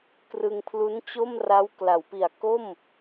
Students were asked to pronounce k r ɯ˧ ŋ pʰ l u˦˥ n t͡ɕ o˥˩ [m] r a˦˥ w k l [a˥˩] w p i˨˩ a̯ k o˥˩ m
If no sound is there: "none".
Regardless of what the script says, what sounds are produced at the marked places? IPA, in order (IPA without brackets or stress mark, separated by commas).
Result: m, a˩˦